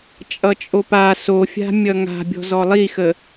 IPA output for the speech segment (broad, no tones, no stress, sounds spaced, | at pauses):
t͡ʃʼ ʌ t͡ʃʼ o p a s o fʲ a̤ mʲ ʌ ŋ a̤ bʲ ɔ̤ z ɔ lˠ i x ə